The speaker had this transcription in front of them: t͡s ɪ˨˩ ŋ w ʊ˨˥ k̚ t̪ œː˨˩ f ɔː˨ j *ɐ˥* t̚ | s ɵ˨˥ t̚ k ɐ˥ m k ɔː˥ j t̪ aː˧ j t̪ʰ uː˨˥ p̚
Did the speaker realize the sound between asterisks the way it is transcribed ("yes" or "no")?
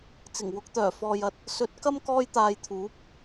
no